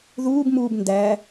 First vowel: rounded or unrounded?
rounded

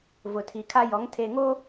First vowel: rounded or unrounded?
rounded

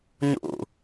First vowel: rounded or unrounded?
rounded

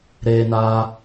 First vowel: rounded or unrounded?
unrounded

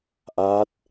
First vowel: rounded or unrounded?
unrounded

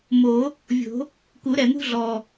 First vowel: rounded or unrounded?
rounded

